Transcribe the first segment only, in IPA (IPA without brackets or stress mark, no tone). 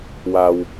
w